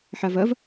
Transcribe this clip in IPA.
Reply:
ħavɐv

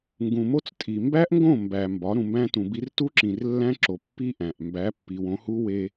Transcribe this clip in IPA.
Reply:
ŋɡũ˨mo˦t͡stʼi˨ mbæ˦ʔŋɡõ˦˨ mbæ˨mbɒ˨˦ ɾũ˨mbæ̃˦tũ˨bi˦r tu˦ǁĩ˨r lːæ̃˦ǁo˨ pːi˦ ʔæ̃˨ʔ mbæ˨˦pːi˨wõ˨˦hu˦ we˦

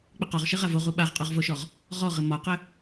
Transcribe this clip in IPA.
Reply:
k͡pɪqɒʁʃɘ ʁavoʁu ɓaʁqʼɔʁvoʃɔʁ | ʁɔʁɘ mɒqɘ

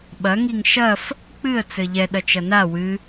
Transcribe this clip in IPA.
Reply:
ɓɐ ŋiŋʃɐf | k͡pɨə̯ t͡sɘʎɛ ɗɐt͡ʃɐna wɨ

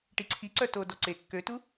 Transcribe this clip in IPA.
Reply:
ʈiǀʰi ǀœto dɔǀe kːøtu

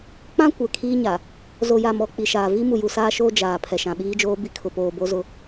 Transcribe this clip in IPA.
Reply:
k͡pã˦ kʷɛ˨kʰiː˦ɲa˨ | zo˨ja˨mɔ˨ k͡pi˨ʃaː˨ vi˦ mu˨ju˨saː˦ʃoː˦ d͡ʒaː˨ pʰɛ˨ʃã˨ɓiː˦d͡ʒoː˦ bi˦kʰʊ˨poː˨ bo˦zʊ˦

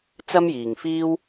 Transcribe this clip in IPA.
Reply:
t͡sɐ˥mjiː˨ŋfiː˥w

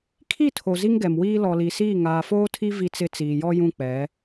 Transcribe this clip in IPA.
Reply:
kʰi˦˨tʰo˨ zi˦ŋɡɛ˨mwiː˦ lɔ˨li˨siː˦˨ ŋaː˨foː˦tʰi˦ vi˦t͡sɪ˦ t͡siː˨jɔ˦ jũ˦˨k͡pɛ˨˦

